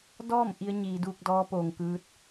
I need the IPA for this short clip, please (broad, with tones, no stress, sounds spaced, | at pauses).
d ɔː˥˨ m ʔ i˧˥ ə̯ ɲ iː˩˧ d uː˧ k̚ d ɔː˧˥ p oː˩ ŋ k ɯː˧ t̚